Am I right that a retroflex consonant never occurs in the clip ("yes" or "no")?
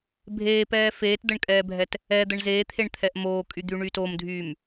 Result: no